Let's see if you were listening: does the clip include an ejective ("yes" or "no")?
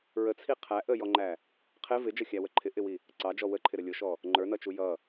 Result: no